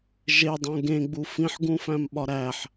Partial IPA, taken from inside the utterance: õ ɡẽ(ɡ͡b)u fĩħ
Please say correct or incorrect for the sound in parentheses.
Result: correct